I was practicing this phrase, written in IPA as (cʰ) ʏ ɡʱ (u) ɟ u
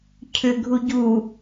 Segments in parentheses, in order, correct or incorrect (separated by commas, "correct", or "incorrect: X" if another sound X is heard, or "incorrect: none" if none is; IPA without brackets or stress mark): correct, correct